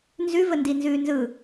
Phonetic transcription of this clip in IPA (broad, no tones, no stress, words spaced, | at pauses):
nzʉ vəndinzʉːnzɯ